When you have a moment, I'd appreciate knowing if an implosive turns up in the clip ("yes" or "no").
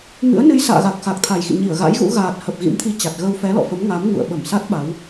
yes